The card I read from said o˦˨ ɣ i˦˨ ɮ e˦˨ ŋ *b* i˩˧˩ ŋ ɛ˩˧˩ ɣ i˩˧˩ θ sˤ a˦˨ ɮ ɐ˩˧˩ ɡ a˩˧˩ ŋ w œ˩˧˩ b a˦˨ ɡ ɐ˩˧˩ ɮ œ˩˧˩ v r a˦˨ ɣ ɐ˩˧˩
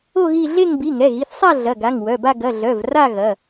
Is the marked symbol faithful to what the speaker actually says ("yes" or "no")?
yes